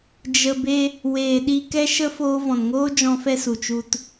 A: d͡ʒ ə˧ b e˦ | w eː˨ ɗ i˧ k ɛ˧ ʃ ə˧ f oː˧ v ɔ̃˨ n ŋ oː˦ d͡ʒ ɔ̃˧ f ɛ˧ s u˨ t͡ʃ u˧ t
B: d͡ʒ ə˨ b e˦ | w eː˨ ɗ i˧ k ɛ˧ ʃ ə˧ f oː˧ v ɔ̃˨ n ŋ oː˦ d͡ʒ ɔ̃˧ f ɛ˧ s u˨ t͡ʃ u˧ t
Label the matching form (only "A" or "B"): A